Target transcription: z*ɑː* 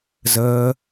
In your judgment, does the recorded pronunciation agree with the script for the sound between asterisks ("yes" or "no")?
no